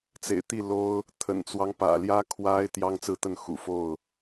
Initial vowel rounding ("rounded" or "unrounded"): unrounded